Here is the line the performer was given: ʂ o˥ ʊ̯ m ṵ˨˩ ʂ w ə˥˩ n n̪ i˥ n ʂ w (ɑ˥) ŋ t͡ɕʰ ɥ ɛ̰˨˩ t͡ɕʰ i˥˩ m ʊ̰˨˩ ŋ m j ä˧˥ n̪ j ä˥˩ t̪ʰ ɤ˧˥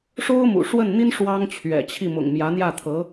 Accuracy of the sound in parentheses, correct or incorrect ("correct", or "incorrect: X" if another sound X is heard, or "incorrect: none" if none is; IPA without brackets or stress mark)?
correct